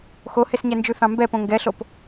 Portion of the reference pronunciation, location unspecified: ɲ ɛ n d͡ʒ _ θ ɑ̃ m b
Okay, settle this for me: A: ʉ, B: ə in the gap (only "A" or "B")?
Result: A